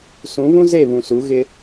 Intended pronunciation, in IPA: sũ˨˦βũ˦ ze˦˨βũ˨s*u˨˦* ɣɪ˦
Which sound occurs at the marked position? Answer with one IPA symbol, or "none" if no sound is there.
u˨˦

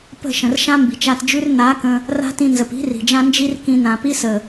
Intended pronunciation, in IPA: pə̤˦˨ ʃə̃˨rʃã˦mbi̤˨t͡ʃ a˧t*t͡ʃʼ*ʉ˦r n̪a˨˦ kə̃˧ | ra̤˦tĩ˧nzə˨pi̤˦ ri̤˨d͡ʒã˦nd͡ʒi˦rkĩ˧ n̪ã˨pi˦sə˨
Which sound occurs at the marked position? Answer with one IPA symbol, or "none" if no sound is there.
d͡ʒ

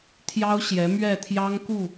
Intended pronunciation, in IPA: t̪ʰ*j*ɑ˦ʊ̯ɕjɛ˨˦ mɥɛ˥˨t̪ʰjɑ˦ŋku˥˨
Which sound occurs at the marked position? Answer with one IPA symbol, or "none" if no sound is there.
j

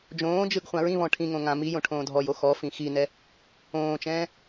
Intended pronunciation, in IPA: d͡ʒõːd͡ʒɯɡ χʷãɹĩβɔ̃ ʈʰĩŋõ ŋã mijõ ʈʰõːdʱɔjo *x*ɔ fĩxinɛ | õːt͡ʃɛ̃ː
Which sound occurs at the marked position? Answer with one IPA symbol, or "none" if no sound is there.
x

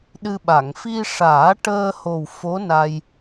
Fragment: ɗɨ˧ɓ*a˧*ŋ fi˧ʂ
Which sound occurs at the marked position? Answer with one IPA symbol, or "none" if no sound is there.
a˨˩˨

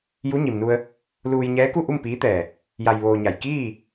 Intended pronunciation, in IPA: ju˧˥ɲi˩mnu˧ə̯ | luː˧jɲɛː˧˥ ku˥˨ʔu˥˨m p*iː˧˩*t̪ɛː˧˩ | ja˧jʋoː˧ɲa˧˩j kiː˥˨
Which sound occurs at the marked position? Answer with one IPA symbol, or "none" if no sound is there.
iː˧˥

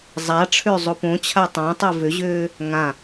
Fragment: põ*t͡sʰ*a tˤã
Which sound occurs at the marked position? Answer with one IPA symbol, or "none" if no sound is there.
t͡ɕʰ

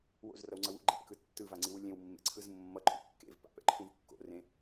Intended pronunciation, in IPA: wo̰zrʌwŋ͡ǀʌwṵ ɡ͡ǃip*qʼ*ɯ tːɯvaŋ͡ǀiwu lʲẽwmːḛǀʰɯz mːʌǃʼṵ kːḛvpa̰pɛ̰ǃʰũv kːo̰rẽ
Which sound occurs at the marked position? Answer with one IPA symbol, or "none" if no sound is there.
k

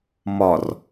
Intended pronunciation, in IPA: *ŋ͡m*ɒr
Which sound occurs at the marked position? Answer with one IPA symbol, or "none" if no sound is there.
m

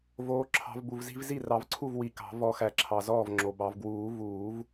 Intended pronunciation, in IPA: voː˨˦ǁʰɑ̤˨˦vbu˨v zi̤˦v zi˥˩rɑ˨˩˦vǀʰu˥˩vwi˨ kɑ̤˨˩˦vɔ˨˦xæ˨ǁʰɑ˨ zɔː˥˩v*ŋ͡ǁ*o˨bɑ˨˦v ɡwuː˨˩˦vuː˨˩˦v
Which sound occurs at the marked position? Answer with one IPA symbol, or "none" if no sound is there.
ŋ͡ǁ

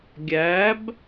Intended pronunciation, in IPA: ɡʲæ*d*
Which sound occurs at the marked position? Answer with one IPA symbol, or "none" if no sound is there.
b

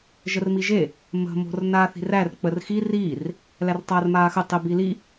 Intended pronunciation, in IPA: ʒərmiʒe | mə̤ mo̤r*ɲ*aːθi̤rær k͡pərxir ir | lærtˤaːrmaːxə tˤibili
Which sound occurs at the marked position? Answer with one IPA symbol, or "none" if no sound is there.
n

